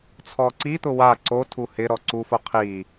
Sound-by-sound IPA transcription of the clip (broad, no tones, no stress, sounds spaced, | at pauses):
t͡sʰ ɔ ǀ i t̪ ʊ w a ǀ o tʰ u h ɪ ɾ ɔ ǀ u f o qʰ i